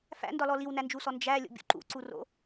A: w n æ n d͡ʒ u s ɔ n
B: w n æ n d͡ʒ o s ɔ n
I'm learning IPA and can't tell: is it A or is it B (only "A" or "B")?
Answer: A